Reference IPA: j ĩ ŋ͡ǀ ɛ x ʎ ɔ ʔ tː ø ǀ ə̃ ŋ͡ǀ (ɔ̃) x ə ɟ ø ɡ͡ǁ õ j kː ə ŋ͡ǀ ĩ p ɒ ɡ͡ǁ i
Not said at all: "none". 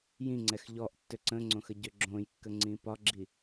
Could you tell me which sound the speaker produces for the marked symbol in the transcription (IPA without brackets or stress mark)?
õ